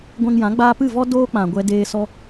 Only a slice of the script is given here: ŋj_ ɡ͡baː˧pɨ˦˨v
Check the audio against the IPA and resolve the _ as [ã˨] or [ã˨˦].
ã˨˦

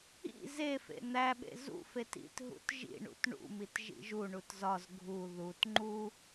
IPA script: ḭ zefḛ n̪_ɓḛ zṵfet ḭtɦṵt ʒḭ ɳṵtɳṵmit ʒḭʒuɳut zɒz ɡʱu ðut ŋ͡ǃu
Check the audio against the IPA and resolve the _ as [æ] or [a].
æ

